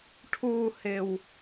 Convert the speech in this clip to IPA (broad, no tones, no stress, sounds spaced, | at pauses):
ʈʰ u h ɪː w